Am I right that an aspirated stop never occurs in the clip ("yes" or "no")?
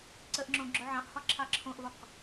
no